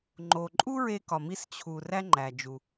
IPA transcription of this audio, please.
ŋ͡ǃ o˩ ǃʼ u˥ ɹ e˧ k ɒ˩ m i˧ s t͡ɕʰ u˩ r æ˥ ŋ͡ǃ æ˩ d͡ʒ u˩

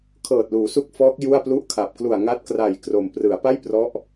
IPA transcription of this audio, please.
kʰ ɤː˨˩ t̚ l uː˩˦ s u˦˥ k̚ f ɔː˦˥ k̚ j u˥˩ a̯ p l u˥˩ ʔ kʰ a˨˩ p̚ k l u˨˩ a̯ ŋ a˦˥ t̚ k r a˨˩ j k r o˨˩ m p r ɯ˩˦ a̯ p a˥˩ j p r ɔ˦˥ ʔ

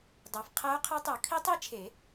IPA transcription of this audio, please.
dˤ æ˨ f qʰ æ˦˥ ʊ̯ qʰ e˦˥ tˤ o˨˩˦ kʰ i˦˥ tˤ i˦˥ t͡ʃʰ e˨˩˦

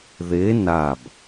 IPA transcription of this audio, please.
ð e n a b

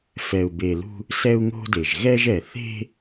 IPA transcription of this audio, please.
f ɛ˨ u̯ b e˨ l ṳ˦ | s ɛ˦ u̯ ŋ o̤˦ d e˨ ʒ ɣ ɛ˦ ʒ ɛ˨ θ e̤˦

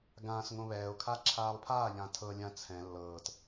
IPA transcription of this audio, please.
ɡ ãː s ŋ õ β ɛː o̯ kʰ aː ǁʰ aː lˠ pʰ aː ʎ ã tʰ ɤ lʲ ã t͡sʰ ɛ̃ lː ɤː t

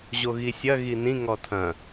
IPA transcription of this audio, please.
ʑ o ɣ i sʲ ɐ ɣ i n ĩ ŋ ɔ tʰ ɐ̃

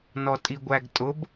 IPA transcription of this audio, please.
n ɔ tʼ i ɡʷ æ ɡ tʼ ʊ b

